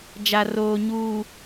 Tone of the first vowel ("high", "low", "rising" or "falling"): low